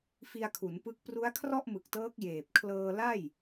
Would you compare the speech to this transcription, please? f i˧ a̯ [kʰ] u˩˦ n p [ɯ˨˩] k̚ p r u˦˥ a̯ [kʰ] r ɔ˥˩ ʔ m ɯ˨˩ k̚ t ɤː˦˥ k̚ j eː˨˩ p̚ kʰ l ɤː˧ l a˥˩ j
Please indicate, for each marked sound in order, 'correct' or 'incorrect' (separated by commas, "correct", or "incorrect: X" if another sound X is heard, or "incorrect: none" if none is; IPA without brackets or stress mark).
correct, incorrect: ɯ˦˥, correct